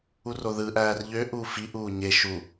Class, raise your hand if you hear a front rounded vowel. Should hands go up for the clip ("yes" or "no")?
yes